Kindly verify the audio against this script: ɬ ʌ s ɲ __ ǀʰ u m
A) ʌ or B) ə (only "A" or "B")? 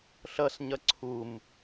A